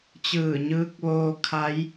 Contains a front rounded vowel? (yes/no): no